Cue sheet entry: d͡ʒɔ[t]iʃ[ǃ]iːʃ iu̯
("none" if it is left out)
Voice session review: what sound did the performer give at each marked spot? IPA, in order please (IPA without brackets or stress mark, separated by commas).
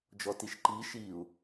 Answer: t, ǃ